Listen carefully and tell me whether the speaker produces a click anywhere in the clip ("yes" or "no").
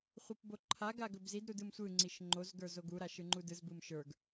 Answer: yes